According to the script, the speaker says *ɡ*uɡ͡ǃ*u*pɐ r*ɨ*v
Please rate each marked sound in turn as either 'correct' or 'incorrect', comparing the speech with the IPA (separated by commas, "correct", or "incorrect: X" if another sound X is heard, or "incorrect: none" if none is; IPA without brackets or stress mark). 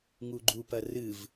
incorrect: ŋ, correct, correct